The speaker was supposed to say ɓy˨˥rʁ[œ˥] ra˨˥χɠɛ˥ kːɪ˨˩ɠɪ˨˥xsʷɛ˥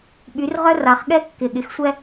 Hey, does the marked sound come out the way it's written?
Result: yes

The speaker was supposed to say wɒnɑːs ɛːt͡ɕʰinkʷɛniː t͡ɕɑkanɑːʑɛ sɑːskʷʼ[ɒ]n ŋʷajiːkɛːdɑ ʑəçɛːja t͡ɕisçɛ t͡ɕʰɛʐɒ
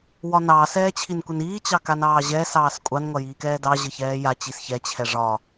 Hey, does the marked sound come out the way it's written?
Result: no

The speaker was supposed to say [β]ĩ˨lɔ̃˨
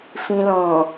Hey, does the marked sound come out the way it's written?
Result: no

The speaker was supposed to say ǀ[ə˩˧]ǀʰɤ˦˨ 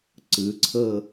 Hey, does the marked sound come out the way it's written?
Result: no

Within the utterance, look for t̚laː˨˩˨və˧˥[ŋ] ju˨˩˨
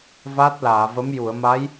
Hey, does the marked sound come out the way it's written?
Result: no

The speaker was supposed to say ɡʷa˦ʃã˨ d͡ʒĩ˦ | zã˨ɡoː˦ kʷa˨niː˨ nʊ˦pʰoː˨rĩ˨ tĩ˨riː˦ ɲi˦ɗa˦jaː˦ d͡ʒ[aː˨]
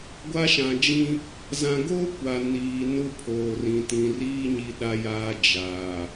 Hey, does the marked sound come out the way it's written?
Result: yes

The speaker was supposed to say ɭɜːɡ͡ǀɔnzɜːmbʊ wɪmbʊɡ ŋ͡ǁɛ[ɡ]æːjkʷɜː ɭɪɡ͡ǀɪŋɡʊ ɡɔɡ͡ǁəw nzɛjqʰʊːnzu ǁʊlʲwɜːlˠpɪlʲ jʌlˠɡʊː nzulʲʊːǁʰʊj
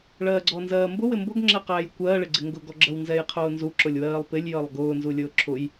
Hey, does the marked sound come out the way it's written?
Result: no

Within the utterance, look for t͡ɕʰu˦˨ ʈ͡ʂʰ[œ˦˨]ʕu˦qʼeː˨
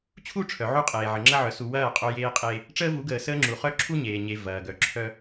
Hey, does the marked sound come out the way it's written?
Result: no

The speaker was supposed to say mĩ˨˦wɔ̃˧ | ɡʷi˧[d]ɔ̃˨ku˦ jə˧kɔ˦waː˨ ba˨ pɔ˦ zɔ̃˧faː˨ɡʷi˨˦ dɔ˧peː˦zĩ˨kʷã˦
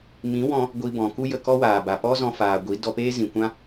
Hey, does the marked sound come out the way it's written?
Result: no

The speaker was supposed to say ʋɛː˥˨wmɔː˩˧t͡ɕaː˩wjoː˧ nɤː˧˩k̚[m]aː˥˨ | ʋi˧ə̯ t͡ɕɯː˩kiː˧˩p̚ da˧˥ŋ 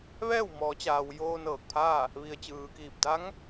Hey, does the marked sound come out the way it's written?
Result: no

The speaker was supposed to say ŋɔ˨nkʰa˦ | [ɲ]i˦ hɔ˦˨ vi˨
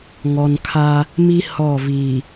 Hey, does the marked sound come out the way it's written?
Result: no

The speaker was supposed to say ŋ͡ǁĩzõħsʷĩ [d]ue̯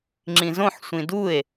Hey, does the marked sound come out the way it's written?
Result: yes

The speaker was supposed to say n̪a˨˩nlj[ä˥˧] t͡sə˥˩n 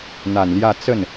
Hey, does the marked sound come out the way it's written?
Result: yes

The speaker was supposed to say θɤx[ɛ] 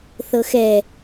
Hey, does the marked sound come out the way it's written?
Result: yes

